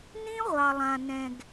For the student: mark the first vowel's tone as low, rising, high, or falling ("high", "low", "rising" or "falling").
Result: high